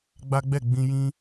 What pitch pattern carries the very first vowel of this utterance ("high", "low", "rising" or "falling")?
high